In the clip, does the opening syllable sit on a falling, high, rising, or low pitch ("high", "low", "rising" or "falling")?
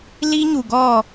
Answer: high